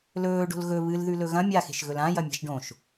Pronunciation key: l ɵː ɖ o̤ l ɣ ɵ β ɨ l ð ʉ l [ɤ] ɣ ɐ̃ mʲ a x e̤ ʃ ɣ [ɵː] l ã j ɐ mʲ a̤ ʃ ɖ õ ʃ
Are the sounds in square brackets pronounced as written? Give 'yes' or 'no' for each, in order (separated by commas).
no, no